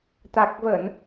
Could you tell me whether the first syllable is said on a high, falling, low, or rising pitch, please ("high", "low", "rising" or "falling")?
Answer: low